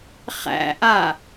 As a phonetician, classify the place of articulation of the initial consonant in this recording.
uvular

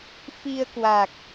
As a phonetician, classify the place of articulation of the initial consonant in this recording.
labial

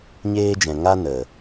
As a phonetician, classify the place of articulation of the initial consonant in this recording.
palatal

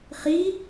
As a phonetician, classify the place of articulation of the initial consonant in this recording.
uvular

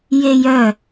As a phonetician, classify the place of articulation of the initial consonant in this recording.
palatal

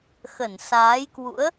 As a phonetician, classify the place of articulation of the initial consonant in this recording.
velar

